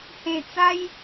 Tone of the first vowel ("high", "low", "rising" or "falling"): low